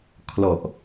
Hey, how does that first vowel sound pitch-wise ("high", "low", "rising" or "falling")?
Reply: low